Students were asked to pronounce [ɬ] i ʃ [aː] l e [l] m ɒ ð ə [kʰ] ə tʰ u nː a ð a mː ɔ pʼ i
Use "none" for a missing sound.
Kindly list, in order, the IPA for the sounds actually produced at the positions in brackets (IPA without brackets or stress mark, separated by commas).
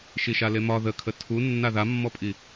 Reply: ʃ, a, none, kʰ